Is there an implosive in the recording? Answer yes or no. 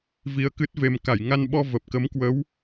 yes